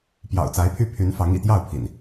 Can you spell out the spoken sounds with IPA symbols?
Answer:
p j ɑ̰˨˩ ʊ̯ t͡s a˨˦ ɪ̯ pʰ y˦ pʰ y˨˦ n f ɑ˨˦ ŋ ḭ˨˩ t̪ j ɑ˥˨ ʊ̯ pʰ ḭ˨˩ n

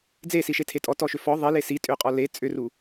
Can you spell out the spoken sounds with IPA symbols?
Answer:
d͡z e s i ʃ e tʰ e tʼ ɔ t ɔ ʃ ʏ f ɔ ðˤ i l e s i tʼ ʏ qʼ ɔ l e t͡sʼ ʏ r u

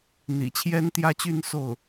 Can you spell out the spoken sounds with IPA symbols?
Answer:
n̪ ḭ˨˩ t͡ɕʰ j ɛ˥ n t̪ j ä˥ t͡ɕ y˥˧ n s o˥˩ ʊ̯

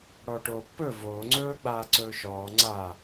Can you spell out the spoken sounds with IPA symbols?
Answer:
ɽ ɔː ʈ oː pː ɵ v oː ŋ͡ǀ ɵː ɡ͡b aː ǀ ɵː ʃ ɔː ŋ͡ǀ a

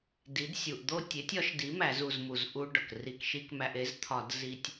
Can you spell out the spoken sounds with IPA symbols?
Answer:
d i˩˥ d sʲ u˩ ʔ d̪ o˥˧ tʲ e˩˥ tʲ ɒ˩˥ ʃ d i˩˥ m æ˧˩˧ z u˧˩ z m u˩ z ʔ u˧ ɖ ɒ˩ k r i˧˩ k ʃ i˥˧ k m æ˧ ʔ e˩˥ z t̪ʰ ɒ˧˩˧ d z i˧ tʲ

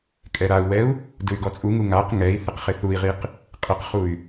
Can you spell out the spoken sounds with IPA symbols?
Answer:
kʼ ɛ ɾ a u̯ w ɛ u̯ | d ɯ y̯ ɡ ɔ t͡sʼ u ŋ u ŋ a q ŋ ɛ i̯ θ ɪ q χ ɪ θ u i̯ ʁ i q | qʼ ɪ q χ u y̯

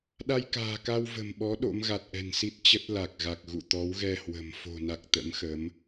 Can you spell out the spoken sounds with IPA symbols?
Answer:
ɗ a˧ j k a̤ː˨˩ k a˧ w v ə̤˨˩ m ɓ ɔ˨˦ ɗ o̰˧˥ m ɣ a˨˩ t̚ ʔ ɛ̤˨˩ n s i˦˥ t̚ t͡ɕ ə˦˥ t̚ l a˨˩ k̚ ɣ a˨˩ k̚ ɣ ṵ˧˨ t̪ ɔ˨˦ w ɣ ɛ˧ h w ə̤˨˩ m f o̤˨˩ n a˨˩ k̚ t̪ ə̰˧˥ m x ə˨˦ m

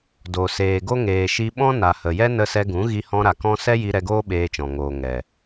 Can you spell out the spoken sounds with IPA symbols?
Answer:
d o˨ s eː˨ ɡ o˦ ŋ eː˨ ʃ i˧ ɓ ɔ̃˦ n a˨ h ə˨ j ɛ˦ n ə˧ s ɛ˧ ɡ ũ˨˦ ɣ i˧ h ɔ̃˧ ɾ a˨ k ɔ̃˦ s ɛ˦ j i˧ ɾ ɛ˧ ɡ oː˦ ɓ eː˧ t͡ʃ ɔ̃˨ ŋ oː˨ ŋ ɛ˨

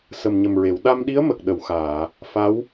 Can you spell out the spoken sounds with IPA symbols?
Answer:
s ə˨˩ m ɲ ə˨˩ m ɹ e˨˩˨ w ɗ a˧ m ɗ i˧˥ ə̯ m ə˨˩ k̚ ɗ ə˨˩˨ w x aː˨˩˨ | f a˧˥ w

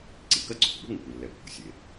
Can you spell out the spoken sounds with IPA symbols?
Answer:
ǀ i˩ k ɐ˥ ǀ o̤˩ kʷ ɓ o̤˥ ŋ e˩ kʷ ɘ˩ lː ɛ˩ pː o̤˩ sʲ e˩

